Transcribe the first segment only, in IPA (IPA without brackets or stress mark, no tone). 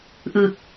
ʔ